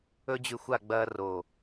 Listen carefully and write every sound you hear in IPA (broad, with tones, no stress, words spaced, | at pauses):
ɵ˦d͡ʑʉ˧ xʷa˦˨ ɡ͡bɐː˧roː˨